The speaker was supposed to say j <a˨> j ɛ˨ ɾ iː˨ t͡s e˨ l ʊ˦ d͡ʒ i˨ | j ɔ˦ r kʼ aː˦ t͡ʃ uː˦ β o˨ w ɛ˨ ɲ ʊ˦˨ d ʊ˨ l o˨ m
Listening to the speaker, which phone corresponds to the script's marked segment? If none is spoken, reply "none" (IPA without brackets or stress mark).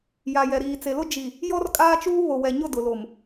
a˨